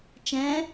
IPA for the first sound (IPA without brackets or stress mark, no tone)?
t͡ʃ